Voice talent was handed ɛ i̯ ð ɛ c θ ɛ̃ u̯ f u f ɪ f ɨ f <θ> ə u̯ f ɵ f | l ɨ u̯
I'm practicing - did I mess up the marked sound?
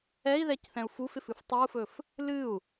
yes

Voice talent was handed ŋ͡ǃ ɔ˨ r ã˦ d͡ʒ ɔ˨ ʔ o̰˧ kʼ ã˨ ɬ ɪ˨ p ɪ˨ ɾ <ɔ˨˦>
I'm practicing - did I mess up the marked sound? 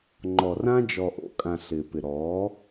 no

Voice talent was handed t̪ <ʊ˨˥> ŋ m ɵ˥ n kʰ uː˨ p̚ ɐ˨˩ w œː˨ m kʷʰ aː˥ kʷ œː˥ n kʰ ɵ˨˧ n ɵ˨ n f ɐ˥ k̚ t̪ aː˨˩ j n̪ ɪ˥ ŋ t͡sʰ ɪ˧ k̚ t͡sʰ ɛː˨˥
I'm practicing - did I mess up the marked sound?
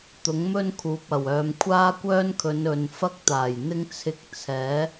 no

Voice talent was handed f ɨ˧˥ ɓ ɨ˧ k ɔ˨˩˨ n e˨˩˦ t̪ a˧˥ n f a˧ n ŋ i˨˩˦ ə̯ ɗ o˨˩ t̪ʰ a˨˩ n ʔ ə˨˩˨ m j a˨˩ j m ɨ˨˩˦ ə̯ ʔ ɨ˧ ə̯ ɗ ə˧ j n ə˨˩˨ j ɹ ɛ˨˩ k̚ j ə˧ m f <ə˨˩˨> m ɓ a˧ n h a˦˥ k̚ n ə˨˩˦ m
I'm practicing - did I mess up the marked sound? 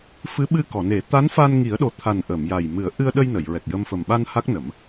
yes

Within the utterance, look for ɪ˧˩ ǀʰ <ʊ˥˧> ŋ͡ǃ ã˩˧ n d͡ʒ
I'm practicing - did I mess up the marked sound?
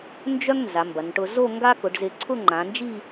no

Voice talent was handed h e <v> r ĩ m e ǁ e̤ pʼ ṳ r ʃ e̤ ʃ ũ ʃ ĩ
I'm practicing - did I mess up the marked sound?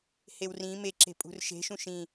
yes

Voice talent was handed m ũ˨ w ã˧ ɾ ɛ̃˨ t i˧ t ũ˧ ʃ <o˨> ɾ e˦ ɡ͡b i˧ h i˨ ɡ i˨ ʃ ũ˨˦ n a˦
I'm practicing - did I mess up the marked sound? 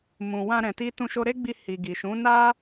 yes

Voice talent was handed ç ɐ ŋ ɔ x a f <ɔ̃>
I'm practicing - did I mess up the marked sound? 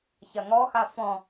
no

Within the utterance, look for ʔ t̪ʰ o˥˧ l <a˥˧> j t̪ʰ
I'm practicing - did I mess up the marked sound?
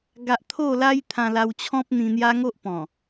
yes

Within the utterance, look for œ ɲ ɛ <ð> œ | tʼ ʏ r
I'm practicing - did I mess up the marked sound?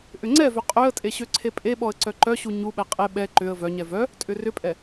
yes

